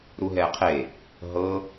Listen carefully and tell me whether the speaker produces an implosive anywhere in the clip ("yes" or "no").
no